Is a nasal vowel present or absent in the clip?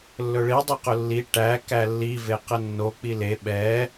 absent